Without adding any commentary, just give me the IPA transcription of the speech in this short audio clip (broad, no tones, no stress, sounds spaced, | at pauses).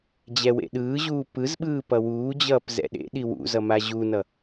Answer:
d͡ʑ ɛ w ḛ ɗ ɯː ʑ uː p ɯ z ɓ ɯː p ʌ w uː d͡ʑ ʌː p z ɛ̰ ɗ ḛ ɗ i w ṵ z ʌ m a ʑ u n ʌ